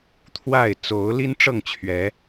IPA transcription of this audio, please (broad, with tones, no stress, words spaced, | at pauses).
t̪ʰwa˥˨ɪ̯ t͡so˨˦ʊ̯li˦n ʈ͡ʂɤ˥˨ŋt͡ɕʰɥɛ˨˦